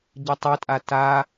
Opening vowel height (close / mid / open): mid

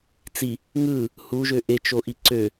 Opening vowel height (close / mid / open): close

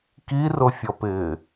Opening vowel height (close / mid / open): close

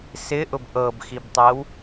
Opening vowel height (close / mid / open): close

